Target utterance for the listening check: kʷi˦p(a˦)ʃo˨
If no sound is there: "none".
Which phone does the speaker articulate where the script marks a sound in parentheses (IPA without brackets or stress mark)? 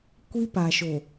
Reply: a˨